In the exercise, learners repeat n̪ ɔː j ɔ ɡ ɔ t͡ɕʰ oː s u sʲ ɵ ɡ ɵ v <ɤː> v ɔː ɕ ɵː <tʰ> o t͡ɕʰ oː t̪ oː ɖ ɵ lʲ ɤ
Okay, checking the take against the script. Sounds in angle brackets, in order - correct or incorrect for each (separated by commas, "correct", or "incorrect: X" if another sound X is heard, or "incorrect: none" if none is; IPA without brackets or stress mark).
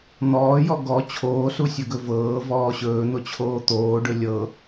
correct, incorrect: n̪